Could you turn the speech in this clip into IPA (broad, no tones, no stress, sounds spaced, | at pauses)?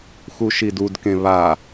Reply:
x u ʃ i d u d k ẽ β a